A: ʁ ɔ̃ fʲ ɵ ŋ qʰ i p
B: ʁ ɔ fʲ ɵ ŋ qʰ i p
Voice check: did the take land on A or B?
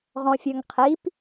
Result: A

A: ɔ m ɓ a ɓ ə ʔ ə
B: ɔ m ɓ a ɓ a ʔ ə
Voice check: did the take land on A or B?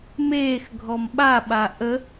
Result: B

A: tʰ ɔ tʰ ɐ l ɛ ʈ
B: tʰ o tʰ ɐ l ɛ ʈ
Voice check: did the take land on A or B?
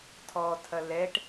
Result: A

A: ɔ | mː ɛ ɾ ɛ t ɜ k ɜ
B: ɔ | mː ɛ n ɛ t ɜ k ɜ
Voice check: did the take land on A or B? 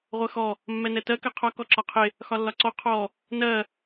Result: B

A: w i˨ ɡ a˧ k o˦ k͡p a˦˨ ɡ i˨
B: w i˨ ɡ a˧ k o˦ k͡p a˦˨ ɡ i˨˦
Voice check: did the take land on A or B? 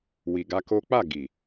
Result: A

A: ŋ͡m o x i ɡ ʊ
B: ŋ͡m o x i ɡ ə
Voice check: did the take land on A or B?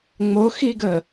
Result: B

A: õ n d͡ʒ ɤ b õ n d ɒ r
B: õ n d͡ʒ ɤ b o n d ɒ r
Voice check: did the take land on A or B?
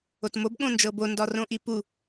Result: B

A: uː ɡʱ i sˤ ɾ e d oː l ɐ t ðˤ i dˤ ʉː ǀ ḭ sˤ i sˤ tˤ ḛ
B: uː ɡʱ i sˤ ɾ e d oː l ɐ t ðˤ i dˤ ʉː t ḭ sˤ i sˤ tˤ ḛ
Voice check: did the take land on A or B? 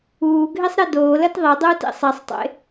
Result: B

